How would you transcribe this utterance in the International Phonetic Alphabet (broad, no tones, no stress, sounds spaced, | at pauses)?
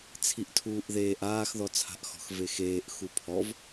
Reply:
t͡sʰ i ʔ tʰ uː ʔ ð eː ʔ aː x ð ɔ t͡sʰ a̤ ʔ x ɔ̤ x v e x eː ʔ x u pʰ ɔ v